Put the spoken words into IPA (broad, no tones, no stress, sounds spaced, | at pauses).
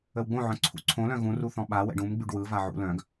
ə w ɡ͡b õ ʕ œ̃ ǀʰ ṵ ǀʰ õ l œ̃ ɣ ũ r u θ ɔ̃ ɓ a w ɛ̰ ɖ ũ m ɡ͡b y ɖ w ɯ v a ʕ ṵ l œ̃ ɡ